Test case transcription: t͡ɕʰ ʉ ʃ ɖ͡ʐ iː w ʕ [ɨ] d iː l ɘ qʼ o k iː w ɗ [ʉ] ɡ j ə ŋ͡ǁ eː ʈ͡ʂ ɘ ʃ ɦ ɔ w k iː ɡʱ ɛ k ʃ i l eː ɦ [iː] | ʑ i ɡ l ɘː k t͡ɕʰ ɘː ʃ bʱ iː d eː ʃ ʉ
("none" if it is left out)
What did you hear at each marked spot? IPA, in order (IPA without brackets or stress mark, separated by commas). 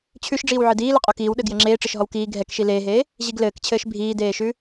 ɨ, ɘ, eː